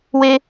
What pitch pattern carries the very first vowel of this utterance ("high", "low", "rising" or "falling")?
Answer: high